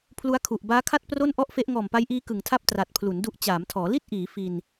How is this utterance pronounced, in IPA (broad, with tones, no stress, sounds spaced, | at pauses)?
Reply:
pʰ l u˦˥ a̯ kʰ u˨˩ ʔ b aː˦˥ kʰ a˥˩ t̚ p r o˥˩ n ʔ ɔ˥˩ ʔ f e˦˥ ʔ ŋ ɔː˨˩ m p a˦˥ j ʔ iː˦˥ k ɯ˨˩ ŋ tʰ a˥˩ p̚ t r a˨˩ t̚ pʰ l u˩˦ n d u˦˥ ʔ t͡ɕ aː˩˦ m tʰ ɔː˩˦ l i˥˩ t̚ ʔ iː˩˦ f i˧ n